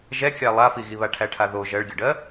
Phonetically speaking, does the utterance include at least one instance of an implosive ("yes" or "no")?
no